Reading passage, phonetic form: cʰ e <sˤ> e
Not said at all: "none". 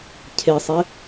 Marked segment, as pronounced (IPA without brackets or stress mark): sˤ